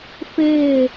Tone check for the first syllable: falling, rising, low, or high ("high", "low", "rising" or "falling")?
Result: falling